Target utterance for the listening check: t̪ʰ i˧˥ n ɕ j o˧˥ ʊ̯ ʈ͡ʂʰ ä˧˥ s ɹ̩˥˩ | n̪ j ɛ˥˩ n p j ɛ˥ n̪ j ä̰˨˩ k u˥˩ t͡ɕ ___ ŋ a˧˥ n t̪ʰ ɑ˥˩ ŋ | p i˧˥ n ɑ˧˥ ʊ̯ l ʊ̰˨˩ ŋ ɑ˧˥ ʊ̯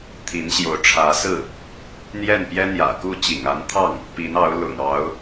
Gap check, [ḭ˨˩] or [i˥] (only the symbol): ḭ˨˩